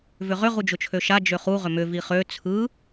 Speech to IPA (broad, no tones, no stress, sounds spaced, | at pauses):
v ʏ ʁ ʏ ʁ u d͡ʒ ʊ t͡ʃʰ ø ʃ a d͡ʒ ø χ u ʁ ʏ m ʏ v i χ ø t͡sʰ ɯ